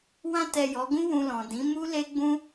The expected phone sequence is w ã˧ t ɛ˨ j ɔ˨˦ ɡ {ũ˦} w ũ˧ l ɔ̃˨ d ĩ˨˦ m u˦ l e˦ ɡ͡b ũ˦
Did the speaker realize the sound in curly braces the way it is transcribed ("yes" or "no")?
yes